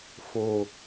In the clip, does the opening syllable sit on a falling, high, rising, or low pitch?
low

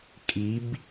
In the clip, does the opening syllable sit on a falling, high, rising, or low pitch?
rising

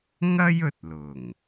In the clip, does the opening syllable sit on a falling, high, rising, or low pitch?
high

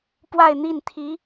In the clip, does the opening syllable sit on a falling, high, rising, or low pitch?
falling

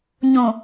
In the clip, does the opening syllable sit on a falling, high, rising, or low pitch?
low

